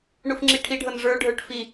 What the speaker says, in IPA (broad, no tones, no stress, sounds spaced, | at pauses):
ɳ u f ŋ͡ǁ i ʈʰ i ɖʱ ɤ n ʐ ə˞ ɖʱ ə˞ ʈ f i